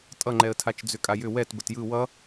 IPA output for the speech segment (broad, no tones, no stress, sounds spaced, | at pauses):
tʼ ʌ ŋ͡ǃ ɛ ə̯ tʰ a t͡ʃ d͡z ʏ kʼ a j ʏ w ɛ t b ə t j ɯ w ʌ